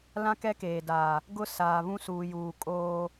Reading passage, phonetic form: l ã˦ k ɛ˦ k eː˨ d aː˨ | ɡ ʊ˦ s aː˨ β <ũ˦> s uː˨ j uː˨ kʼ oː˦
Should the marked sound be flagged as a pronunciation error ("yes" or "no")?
no